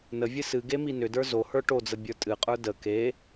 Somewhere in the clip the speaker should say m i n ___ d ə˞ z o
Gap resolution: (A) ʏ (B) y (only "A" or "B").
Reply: A